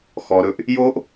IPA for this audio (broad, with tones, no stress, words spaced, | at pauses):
xɔ˨ ɾɵ˦ʔ | jo˦ʔ